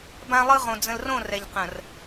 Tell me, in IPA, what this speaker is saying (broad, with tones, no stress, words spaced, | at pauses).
bã˦lˠɯ˦ʁõ˨ d͡zə̃˨lrõ˦˨ rɛ˨ʎqə̃˨r